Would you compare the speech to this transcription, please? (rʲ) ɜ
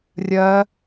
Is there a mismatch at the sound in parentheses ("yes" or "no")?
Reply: no